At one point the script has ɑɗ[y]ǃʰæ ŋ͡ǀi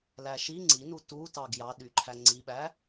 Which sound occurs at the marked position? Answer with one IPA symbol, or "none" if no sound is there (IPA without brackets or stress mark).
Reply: y